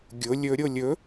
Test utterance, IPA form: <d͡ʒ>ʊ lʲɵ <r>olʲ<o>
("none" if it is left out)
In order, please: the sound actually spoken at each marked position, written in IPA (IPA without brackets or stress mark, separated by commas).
ɡʲ, ɾʲ, ɵ